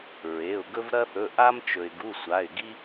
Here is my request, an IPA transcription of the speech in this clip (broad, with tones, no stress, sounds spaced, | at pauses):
ɹ e˩˧˩ ʊ̯ ɡ ɵ˦ v ɾ ɐ˦ θ ɵ˩˧˩ ʔ a˦ m t͡ʃ ɵ˩ ɪ̯ ɡ u˩˧˩ sʷ a˩˧˩ ɪ̯ ɡ i˦